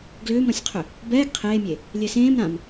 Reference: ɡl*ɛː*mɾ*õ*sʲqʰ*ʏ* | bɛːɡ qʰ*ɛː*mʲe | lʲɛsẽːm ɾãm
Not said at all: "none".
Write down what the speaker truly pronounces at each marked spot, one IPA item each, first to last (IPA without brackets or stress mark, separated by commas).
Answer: ʏː, ɔ̃, ʏ, eː